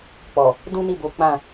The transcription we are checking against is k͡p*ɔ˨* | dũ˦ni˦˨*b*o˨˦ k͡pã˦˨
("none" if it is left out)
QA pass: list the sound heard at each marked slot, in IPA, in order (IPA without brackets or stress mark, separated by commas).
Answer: ɔ˨, b